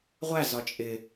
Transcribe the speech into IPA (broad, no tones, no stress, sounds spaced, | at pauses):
ʁʷ æ z ɒ t͡ʃʼ ɪ